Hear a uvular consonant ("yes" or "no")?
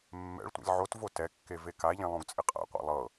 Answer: yes